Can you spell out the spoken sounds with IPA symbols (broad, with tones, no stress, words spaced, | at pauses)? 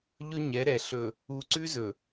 ʎɵ˦ɲɛ˨˦ɾɛ˨ ɬɵ˨ | u˨ǀʉ˦zɵ˨